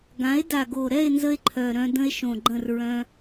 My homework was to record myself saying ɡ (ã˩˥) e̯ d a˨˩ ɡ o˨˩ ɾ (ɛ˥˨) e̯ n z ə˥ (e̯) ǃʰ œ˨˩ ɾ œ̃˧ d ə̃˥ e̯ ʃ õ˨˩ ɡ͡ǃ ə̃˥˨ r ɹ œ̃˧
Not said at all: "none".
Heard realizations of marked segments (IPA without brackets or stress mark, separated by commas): ã˩˥, ɛ˥˨, e̯